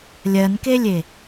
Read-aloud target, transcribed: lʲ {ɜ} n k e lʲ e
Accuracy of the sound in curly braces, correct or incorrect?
correct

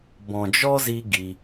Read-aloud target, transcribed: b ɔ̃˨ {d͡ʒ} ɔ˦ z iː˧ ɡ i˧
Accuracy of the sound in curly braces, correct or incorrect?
correct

